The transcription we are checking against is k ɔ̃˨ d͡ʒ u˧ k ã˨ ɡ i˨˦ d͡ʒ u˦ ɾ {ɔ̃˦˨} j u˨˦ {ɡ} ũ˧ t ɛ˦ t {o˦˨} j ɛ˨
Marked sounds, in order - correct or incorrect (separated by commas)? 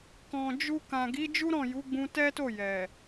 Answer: correct, incorrect, correct